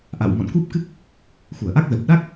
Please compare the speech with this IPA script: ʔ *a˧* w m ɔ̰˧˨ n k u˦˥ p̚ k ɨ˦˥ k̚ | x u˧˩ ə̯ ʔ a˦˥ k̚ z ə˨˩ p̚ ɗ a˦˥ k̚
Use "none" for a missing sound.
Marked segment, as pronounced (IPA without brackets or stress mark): a̰˧˨